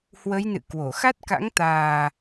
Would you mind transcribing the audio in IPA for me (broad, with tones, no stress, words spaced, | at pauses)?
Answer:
hwə˨˦jnɨ̰˧˨ kwo˧˩ xa˦˥t̚ka̰˧˥ŋ t̪aː˨˩